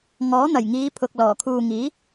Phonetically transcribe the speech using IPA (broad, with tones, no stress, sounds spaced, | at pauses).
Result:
ŋ ɔː˨˥ n̪ ɐ˨˩ j ŋ iː˨˧ pʰ ʊ˨ k̚ l ɔː˨˩ kʰ uː˨ ŋ iː˨˥